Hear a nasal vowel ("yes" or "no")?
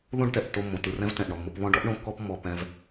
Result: yes